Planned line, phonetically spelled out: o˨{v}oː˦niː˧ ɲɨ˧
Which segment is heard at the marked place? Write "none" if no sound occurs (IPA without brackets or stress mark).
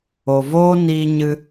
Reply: v